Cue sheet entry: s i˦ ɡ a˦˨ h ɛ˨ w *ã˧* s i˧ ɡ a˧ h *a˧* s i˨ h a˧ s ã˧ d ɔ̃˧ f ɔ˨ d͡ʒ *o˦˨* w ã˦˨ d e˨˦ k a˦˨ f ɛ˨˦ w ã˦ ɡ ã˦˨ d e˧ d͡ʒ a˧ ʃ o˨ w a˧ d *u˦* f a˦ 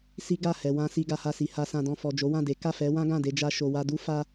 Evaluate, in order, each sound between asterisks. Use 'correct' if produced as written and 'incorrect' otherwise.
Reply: correct, correct, incorrect: o˨˦, correct

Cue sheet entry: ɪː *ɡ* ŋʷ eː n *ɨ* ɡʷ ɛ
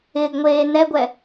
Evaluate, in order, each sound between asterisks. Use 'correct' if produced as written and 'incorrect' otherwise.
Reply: correct, incorrect: ɛ

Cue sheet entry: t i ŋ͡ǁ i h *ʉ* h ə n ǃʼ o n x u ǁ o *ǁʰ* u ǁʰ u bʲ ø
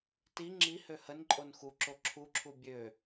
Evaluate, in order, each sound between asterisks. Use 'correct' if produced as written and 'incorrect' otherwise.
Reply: incorrect: ø, correct

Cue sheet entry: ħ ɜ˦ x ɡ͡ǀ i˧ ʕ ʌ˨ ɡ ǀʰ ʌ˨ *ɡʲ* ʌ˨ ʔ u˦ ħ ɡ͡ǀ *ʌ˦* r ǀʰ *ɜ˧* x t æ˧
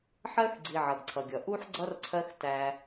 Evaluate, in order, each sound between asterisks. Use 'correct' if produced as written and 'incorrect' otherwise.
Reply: correct, correct, incorrect: ɜ˦

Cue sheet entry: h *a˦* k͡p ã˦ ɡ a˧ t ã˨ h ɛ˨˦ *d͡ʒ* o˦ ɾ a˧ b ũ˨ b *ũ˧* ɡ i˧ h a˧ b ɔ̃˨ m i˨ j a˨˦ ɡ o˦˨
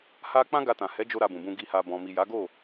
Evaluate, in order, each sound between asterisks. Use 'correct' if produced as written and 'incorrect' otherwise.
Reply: correct, correct, correct

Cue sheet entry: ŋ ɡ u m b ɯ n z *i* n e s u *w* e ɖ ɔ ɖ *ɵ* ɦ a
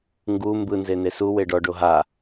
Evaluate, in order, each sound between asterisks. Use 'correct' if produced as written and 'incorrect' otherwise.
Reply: incorrect: e, correct, incorrect: o

